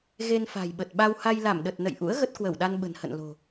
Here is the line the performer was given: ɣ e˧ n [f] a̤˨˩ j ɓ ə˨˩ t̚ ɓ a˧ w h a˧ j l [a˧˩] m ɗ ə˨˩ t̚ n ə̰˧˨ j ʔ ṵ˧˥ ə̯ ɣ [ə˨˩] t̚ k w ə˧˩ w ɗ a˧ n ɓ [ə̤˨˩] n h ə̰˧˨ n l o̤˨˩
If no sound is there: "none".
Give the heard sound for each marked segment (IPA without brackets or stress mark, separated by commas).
f, a˧˩, ə˦˥, ə̤˨˩